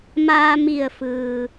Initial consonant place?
labial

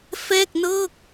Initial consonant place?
labial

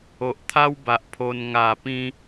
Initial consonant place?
glottal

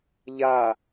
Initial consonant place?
palatal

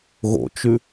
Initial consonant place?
velar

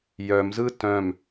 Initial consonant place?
palatal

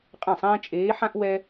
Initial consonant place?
uvular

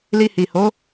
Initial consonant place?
alveolar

